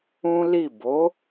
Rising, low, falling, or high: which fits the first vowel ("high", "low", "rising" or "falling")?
high